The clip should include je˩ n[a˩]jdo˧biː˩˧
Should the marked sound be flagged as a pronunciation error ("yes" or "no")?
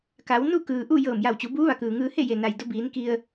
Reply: no